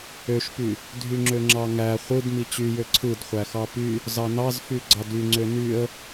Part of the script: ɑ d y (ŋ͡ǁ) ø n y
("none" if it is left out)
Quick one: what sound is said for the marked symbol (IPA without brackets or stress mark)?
ŋ͡ǀ